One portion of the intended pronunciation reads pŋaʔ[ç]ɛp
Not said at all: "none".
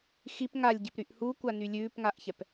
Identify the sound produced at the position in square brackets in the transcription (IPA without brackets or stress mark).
ç